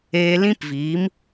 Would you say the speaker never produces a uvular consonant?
yes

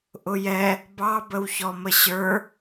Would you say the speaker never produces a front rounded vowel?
yes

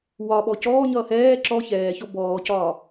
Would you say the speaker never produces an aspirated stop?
yes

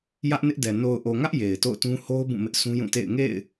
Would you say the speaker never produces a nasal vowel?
no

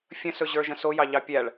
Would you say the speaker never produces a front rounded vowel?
yes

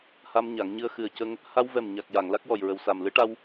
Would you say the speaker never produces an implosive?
yes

